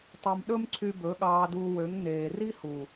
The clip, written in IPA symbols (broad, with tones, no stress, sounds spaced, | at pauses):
tˤ ɑ˧ m ɗ ɵ˦ m ǀʰ y˧ b ɵ˨˦ ɠ ɑː˧ d uː˧ w ø˨˦ ŋ n eː˨ r i˦ h u˨